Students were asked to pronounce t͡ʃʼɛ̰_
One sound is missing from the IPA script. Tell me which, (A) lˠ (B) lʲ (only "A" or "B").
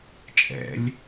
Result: B